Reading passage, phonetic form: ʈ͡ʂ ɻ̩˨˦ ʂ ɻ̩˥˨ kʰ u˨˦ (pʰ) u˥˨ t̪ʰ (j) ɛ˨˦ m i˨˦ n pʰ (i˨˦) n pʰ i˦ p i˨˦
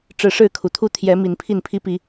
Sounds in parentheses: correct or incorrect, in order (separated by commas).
incorrect, correct, incorrect